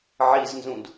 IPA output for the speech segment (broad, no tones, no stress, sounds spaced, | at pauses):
ʕ i z n z ũ d